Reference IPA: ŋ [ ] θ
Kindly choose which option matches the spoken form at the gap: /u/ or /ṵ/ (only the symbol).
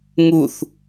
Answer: u